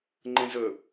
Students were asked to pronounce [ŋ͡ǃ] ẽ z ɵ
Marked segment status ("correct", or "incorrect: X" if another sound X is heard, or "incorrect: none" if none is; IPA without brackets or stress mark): correct